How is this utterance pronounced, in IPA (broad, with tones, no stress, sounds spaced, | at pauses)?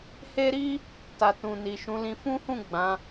h e˦ ɾ i˦ | t a˨ t ũ˨ n i˨ ʃ ũ˨˦ l ĩ˧ f ũ˦ h ũ˦˨ ɡ͡b ã˨˦